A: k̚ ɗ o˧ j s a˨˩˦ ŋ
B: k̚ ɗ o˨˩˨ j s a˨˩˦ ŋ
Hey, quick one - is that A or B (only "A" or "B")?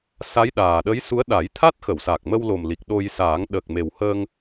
A